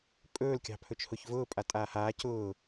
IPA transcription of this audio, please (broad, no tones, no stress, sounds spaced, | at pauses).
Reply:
pʼ ɵː l kʲ ɑ̤ pʰ ɵ t͡ʃ h ʊ ç v ʊː pʼ a tʼ aː h aː c ʊː